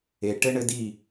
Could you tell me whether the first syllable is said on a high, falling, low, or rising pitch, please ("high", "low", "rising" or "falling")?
low